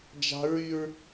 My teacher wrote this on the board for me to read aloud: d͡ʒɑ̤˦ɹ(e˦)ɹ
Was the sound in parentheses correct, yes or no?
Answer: no